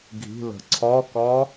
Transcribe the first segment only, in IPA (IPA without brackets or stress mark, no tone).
ɡʱ